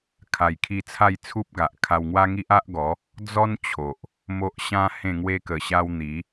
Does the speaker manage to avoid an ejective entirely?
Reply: yes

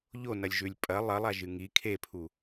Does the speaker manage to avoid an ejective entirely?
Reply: no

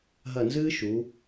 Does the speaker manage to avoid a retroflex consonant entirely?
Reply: yes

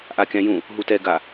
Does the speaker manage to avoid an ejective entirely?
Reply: yes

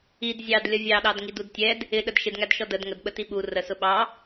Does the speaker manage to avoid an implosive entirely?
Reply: no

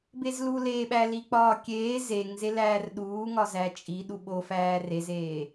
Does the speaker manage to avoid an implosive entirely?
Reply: no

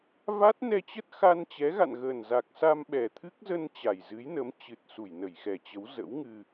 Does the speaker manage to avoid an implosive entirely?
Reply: no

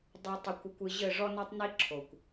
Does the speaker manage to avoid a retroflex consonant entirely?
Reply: no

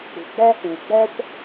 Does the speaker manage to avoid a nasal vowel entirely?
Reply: yes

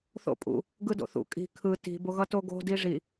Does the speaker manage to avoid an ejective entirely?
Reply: no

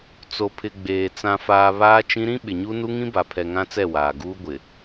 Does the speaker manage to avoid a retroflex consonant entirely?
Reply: yes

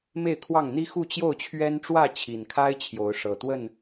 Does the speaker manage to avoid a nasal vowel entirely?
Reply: yes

